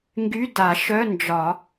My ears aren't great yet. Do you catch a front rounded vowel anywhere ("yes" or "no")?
yes